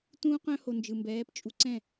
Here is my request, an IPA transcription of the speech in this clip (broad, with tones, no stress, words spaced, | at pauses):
tũː˦qœ̃˦ ho˧nd͡ʒɯ˨mbɛː˨˦pt͡ʃʼu˧ ǀɛ̃˦˨